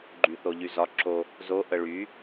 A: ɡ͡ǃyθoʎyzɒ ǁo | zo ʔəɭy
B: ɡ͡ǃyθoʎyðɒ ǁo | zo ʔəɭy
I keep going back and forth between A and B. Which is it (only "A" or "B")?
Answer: A